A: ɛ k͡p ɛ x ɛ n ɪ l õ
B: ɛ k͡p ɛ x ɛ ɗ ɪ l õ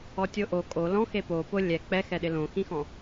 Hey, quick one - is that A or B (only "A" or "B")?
B